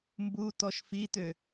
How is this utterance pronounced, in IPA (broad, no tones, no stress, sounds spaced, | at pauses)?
m b u t ɔ ʃ f i t ø